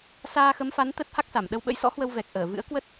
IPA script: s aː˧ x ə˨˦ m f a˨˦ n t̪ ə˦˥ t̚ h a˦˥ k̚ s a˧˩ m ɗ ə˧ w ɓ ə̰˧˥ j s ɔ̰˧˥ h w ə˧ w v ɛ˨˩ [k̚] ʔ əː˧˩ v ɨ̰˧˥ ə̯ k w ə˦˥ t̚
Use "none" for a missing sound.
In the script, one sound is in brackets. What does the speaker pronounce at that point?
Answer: k̚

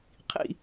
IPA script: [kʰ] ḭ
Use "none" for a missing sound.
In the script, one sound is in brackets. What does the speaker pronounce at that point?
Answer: qʰ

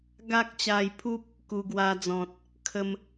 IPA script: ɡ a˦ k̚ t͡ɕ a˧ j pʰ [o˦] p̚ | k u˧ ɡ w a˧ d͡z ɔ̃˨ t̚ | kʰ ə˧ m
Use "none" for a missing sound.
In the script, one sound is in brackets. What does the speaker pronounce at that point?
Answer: u˦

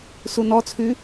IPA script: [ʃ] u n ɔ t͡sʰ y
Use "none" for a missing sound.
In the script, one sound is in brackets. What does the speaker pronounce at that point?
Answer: s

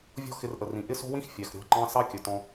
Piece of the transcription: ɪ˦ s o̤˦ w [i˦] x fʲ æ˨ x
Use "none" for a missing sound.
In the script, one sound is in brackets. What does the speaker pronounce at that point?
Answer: ĩ˦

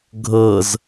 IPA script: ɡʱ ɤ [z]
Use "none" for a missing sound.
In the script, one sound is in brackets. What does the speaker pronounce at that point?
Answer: z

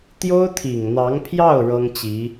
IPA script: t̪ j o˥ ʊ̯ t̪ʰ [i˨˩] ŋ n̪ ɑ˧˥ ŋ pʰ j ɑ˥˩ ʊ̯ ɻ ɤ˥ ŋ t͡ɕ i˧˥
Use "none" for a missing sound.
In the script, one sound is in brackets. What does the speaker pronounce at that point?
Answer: i˨˩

